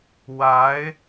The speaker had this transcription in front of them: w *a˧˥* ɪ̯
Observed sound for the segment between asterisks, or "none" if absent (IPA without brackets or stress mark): a˧˥